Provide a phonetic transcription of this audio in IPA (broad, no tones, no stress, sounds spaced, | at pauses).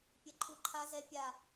pʲ ɛ ǃʰ u ǃʰ a z ɛ pʲ a